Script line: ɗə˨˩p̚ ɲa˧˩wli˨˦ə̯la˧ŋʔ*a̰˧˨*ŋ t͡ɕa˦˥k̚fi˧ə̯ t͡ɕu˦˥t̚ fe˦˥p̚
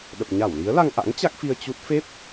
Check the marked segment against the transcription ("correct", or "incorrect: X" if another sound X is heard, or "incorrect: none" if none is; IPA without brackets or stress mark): incorrect: a̰˧˥